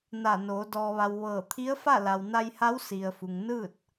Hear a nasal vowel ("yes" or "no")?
no